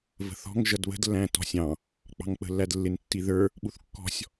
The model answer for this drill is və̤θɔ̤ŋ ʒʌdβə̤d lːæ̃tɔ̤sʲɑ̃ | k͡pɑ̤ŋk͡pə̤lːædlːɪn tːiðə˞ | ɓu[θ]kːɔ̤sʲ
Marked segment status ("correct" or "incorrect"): correct